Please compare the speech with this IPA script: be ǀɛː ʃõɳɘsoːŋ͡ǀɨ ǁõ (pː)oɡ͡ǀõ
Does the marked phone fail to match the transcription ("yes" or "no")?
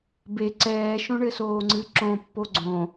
no